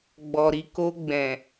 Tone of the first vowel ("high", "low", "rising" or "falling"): low